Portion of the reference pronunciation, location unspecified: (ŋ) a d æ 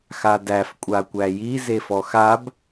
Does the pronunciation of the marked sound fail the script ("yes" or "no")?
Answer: yes